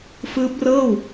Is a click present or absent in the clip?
absent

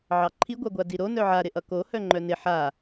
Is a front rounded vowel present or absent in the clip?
present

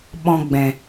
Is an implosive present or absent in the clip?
present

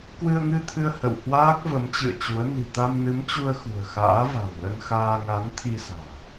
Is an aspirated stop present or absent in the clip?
present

